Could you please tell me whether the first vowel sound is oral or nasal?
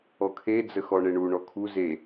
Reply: oral